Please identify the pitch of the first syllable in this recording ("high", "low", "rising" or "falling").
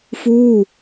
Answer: falling